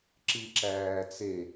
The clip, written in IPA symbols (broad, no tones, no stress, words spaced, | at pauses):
ǁiǁæːt͡se